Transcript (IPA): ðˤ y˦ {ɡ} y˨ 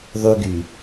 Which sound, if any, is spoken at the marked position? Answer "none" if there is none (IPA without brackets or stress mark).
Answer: ɡ